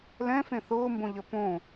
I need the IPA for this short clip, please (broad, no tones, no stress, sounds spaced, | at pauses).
l ɛ̃ f ẽ θ ʊː m b õ ʎ ə p õ